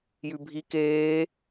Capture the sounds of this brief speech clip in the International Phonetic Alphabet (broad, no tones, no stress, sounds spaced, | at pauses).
j ʉ bʱ i k eː